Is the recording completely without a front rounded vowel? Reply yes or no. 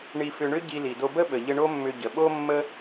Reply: no